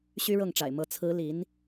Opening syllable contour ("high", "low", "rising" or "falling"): high